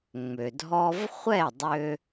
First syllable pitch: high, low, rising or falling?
low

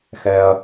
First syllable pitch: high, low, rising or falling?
low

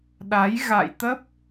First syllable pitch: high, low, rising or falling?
rising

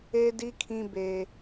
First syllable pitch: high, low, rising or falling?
high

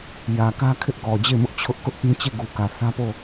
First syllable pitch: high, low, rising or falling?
low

